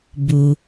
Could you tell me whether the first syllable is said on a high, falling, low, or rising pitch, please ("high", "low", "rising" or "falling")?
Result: low